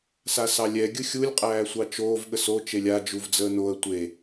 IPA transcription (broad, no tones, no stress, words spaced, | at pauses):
sasɑlʲɛ ɡʲɯxʲulʲ qʼæːsʷɑt͡ʃoːv ɠəso t͡ʃelʲa d͡ʒuvd͡zəːnoə̯ tʷe